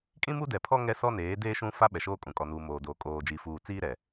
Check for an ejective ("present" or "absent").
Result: present